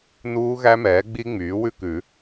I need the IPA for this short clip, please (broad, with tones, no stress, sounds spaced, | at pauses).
n uː˦˥ ɣ æ˦˥ m ɛː˩˥ ɡ͡b i˦˥ ŋ͡m yː˩˥ w ʉ˥˧ k ʉ˨˩˦